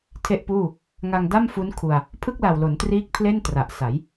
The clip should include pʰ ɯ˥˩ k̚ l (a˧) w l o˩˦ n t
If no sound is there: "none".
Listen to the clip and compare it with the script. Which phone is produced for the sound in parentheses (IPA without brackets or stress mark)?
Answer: a˨˩